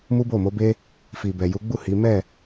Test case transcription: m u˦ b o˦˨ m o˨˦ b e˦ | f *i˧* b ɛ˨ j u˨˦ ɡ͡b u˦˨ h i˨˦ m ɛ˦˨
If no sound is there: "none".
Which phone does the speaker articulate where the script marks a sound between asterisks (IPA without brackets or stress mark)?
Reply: i˨